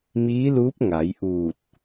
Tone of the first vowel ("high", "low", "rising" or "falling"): rising